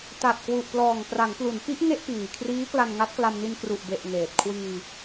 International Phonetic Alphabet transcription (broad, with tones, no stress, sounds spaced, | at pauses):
t a˨˩ t̚ k w u˨˩ ʔ p l ɔː˨˩ ŋ p r a˩˦ ŋ p l u˩˦ n p i˦˥ ʔ ŋ e˥˩ ʔ p iː˨˩ kʰ r iː˦˥ k l a˧ n ŋ a˦˥ t̚ k l a˧ m n i˧ n k r u˨˩ ʔ b e˨˩ ʔ ŋ eː˨˩ t̚ kʰ w iː˧